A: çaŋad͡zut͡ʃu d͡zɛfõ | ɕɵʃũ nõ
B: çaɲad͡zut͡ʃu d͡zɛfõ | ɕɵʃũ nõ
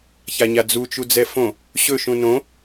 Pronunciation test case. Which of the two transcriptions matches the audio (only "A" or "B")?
B